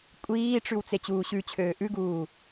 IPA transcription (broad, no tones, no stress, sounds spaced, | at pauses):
kʷʼ iː ʈ͡ʂ ʉ w t͡s e t͡ɕ uː ɕ ʉ t͡ɕʰ øː ʔ ʉ ɡ uː